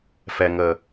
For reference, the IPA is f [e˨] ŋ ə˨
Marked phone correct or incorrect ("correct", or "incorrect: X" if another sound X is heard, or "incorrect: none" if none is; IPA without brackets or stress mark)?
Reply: incorrect: ɛ˨